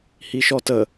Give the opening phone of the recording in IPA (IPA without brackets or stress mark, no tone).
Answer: h